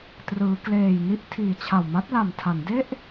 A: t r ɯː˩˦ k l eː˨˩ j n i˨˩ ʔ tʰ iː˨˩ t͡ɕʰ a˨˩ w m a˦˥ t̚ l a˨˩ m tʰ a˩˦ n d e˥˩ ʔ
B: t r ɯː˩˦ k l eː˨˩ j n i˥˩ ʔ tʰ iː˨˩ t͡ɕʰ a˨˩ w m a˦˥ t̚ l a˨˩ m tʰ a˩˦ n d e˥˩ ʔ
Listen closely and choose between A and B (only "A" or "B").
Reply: B